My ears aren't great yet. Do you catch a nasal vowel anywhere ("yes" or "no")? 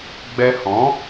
yes